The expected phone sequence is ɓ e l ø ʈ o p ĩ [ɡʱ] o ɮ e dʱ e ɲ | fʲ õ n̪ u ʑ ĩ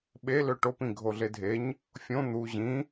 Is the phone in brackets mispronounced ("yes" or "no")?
no